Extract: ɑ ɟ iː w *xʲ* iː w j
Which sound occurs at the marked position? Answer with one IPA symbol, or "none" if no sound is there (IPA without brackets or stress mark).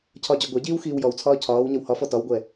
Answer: x